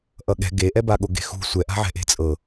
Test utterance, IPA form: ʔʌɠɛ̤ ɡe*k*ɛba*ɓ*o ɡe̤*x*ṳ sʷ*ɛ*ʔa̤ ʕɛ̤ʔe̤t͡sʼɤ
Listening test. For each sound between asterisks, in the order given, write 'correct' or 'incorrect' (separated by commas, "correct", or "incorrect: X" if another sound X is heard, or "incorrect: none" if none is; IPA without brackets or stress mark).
incorrect: ʔ, incorrect: ɠ, correct, correct